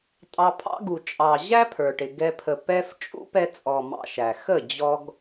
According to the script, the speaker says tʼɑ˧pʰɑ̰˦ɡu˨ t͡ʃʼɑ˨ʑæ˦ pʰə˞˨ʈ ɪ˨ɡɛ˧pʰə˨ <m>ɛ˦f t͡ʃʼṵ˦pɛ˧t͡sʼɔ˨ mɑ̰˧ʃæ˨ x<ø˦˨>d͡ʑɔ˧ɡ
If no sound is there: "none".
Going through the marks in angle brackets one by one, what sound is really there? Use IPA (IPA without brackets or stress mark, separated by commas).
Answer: p, ə˦˨